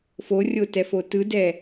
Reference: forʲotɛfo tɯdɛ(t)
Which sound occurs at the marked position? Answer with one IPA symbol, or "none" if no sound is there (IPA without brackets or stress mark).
none